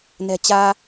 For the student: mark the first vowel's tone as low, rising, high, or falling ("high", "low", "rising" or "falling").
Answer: low